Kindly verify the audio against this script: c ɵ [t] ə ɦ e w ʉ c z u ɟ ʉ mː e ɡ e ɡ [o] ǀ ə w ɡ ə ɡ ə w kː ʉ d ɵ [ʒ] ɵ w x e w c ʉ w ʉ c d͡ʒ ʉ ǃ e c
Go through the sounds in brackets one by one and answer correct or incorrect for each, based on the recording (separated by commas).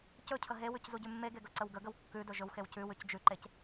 incorrect, incorrect, correct